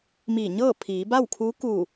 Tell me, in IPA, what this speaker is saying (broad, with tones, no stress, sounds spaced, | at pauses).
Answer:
m iː˧˩ ɲ ɤː˥˨ pʰ iː˩˧ b a˥˨ w kʰ uː˧˥ k uː˧˩